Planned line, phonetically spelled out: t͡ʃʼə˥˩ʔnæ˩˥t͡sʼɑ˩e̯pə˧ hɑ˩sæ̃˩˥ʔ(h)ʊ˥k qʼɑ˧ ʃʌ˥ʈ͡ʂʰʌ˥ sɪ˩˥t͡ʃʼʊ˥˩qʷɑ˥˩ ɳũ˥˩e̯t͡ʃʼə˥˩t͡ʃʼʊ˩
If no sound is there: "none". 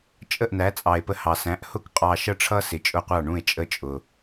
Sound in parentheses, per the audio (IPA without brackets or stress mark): h